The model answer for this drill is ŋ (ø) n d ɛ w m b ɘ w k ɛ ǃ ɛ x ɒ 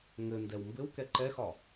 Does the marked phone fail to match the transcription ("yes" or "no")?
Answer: yes